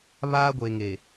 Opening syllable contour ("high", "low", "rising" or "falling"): high